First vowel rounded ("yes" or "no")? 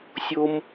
yes